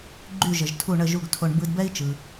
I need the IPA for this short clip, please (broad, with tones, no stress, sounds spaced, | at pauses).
ɡ͡ǃ y˥˩ ʒ ə˩ ʒ tʰ u˥˩ ɳ ə˥˩ ʒ u˥˩ ɡ tʰ o˧ ɳ b ɯ˧ d b ɛ˥ i̯ t͡ʃ ɯ˩